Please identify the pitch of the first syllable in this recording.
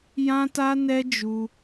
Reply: high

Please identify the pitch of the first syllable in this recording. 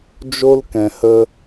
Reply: high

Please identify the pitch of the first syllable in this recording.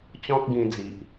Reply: high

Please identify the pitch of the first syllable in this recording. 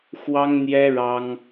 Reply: high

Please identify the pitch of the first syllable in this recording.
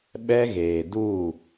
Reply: high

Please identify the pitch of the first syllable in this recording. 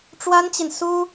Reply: high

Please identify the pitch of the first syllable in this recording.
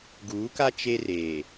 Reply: rising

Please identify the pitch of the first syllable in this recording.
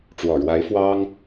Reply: low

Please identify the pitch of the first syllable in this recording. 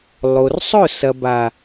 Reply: low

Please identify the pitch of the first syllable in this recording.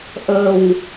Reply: low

